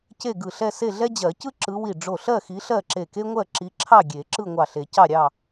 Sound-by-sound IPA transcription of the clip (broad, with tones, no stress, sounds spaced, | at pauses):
c e˥˨ ɡ ɯ˧˩ ɬ ɛ˥˨ s e˥˨ ɮ ɛ˥ d͡ʑ ɜ˨˩˦ c ɯ˥ ǁ ɯ˨˦ w i˧˩ ɖ͡ʐ o˧˩ ɬ ɜ˥˨ x i˨˦ ɬ ɜ˥˨ ǁ e˧˩ k e˥ ŋʷ ɜ˥˨ ǁ i˨˦ ǁʰ ɑ˥˨ ɡʲ e˨˩˦ ǁ ɯ˥˨ ŋʷ ɑ˧˩ ɬ e˨˩˦ c ɑ˥˨ ɾʲ ɑ˥˨